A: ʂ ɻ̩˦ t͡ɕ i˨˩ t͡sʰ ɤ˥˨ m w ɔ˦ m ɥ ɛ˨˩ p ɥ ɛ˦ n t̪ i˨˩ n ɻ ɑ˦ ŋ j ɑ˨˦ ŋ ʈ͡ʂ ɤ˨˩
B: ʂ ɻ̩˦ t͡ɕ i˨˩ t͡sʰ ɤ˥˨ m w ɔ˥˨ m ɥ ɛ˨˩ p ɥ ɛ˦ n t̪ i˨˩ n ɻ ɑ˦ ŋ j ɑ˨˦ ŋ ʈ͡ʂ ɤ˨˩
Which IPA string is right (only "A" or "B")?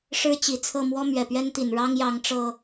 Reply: A